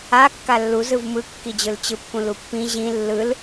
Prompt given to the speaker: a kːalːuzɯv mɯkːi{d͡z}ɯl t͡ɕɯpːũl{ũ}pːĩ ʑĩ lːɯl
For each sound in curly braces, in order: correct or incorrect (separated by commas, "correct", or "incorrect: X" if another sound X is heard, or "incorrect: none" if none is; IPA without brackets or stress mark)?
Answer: incorrect: d͡ʑ, incorrect: u